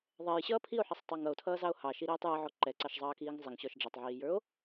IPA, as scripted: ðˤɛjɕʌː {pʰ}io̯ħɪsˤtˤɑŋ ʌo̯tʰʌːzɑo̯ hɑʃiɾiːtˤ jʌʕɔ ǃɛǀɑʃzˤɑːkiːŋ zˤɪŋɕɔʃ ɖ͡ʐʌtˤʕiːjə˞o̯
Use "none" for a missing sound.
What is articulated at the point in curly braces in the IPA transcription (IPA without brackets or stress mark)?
pʰ